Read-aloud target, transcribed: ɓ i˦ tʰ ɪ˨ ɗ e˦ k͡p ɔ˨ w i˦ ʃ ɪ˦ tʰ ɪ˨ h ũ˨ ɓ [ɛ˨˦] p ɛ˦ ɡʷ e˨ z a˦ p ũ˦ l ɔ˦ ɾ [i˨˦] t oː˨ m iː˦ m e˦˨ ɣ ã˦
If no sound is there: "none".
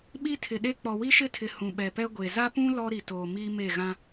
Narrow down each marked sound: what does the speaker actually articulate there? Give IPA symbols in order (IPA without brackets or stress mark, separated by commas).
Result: ɛ˨, i˨